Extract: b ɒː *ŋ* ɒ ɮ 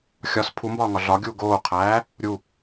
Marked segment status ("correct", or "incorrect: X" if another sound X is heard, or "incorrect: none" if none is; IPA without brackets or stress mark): correct